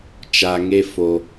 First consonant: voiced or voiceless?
voiceless